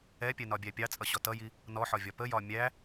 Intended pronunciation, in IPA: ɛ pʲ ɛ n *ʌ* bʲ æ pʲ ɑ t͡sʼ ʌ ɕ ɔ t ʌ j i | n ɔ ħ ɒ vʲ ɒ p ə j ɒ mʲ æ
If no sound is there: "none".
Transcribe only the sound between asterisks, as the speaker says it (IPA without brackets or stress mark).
ɒ